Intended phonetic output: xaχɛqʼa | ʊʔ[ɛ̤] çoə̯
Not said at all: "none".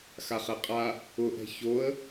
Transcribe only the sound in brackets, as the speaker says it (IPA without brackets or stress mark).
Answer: ɛ̤